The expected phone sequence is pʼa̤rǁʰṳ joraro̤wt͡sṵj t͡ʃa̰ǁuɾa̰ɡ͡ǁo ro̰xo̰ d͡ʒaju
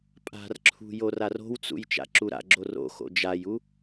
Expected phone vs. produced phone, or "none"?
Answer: none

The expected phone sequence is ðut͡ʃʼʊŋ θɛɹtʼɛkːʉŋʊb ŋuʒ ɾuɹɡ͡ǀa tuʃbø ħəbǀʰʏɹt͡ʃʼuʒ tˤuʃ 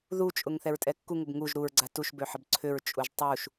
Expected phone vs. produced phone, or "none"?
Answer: ʉ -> u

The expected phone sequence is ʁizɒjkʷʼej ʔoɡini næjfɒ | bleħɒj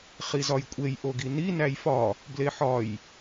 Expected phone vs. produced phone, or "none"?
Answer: ʁ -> χ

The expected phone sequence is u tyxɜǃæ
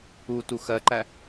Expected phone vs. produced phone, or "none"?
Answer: y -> u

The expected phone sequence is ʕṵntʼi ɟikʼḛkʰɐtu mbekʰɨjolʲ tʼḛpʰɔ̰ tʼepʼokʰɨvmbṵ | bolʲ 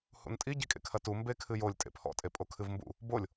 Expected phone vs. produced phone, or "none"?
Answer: ʕ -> h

